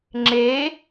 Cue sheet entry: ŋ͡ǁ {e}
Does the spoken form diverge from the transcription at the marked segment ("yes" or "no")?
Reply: no